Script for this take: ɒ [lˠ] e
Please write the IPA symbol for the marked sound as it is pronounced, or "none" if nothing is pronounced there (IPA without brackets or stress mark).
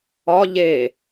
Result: ʎ